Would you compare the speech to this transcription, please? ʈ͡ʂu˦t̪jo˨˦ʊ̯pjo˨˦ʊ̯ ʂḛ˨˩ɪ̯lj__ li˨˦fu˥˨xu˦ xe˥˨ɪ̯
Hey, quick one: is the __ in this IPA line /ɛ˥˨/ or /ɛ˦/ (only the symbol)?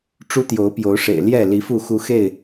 ɛ˥˨